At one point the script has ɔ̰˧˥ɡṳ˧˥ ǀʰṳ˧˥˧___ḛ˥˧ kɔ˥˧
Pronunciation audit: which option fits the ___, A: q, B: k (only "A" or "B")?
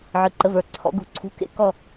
B